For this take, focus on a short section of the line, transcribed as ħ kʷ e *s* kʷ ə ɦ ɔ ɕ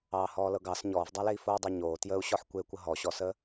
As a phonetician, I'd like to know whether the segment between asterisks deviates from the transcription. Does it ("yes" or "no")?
yes